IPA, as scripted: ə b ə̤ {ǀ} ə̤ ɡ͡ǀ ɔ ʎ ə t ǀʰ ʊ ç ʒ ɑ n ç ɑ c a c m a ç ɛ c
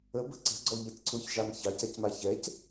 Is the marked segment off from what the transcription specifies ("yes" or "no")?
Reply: no